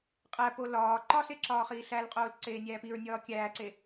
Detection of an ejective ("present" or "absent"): present